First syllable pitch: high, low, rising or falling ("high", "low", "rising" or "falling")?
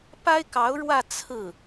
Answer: high